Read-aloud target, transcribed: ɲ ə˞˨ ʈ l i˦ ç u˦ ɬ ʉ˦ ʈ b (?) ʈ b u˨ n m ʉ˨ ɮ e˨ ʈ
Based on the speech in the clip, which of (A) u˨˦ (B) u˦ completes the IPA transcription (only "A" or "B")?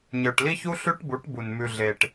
A